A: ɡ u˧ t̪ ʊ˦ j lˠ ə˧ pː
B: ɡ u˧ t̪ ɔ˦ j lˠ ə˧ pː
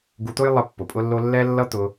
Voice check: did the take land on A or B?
A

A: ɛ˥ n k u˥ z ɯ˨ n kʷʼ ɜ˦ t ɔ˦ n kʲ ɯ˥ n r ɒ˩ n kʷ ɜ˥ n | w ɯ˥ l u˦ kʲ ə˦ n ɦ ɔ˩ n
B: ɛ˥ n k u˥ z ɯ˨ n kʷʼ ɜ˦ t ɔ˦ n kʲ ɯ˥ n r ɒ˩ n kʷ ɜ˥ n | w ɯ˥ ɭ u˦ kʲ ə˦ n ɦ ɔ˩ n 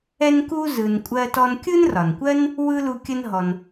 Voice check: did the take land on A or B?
A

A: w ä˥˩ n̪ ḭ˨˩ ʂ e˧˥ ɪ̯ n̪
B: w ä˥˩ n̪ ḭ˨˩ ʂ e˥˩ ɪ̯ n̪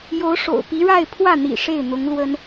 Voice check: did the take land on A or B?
B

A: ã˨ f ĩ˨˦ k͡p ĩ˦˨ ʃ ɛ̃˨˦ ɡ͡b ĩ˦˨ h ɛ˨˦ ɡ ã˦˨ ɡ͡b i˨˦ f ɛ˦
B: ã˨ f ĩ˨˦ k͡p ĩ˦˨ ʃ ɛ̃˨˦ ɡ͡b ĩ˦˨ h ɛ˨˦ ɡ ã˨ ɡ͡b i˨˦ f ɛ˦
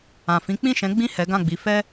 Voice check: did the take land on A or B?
A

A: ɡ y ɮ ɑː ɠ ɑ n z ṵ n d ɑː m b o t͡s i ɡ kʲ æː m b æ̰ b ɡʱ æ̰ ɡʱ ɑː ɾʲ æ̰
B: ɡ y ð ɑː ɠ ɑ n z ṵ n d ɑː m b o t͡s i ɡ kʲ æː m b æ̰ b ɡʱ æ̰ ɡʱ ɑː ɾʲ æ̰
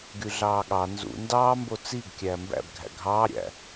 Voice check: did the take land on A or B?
A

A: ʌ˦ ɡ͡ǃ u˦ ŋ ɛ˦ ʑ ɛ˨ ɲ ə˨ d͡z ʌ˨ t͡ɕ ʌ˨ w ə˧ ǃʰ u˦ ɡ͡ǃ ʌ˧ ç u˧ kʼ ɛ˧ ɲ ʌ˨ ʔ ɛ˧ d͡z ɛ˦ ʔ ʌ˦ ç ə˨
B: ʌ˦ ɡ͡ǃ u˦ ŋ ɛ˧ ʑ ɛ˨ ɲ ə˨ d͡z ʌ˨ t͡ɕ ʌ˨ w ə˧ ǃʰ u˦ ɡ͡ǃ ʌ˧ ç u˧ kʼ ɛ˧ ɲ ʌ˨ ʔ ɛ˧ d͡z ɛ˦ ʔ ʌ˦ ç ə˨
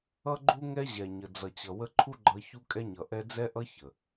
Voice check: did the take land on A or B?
A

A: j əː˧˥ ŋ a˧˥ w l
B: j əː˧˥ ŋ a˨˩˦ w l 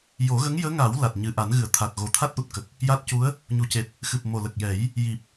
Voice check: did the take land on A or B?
B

